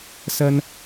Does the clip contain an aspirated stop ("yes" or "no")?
no